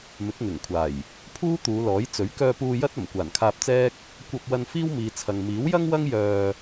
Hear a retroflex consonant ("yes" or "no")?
no